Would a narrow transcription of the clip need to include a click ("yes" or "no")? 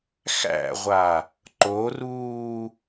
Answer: yes